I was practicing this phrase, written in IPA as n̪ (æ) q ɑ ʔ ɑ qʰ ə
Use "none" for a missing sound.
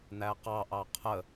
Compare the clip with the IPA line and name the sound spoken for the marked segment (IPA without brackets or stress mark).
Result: æ